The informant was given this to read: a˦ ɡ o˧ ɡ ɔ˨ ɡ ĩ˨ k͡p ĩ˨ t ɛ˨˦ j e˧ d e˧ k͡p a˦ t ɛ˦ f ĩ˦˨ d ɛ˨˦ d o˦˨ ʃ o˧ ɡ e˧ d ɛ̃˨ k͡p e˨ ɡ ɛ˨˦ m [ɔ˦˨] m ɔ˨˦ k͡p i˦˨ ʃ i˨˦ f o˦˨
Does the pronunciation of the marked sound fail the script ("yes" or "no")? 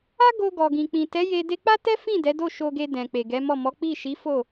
no